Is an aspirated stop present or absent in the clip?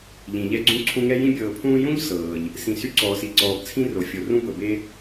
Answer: present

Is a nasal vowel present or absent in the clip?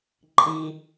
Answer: absent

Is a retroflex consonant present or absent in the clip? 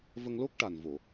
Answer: present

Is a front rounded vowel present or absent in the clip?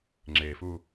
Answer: absent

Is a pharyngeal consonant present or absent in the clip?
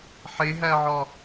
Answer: present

